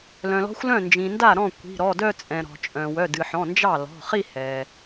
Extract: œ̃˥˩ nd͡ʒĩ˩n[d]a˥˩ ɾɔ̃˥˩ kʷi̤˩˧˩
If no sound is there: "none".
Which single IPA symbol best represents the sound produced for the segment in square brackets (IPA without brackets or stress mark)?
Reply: d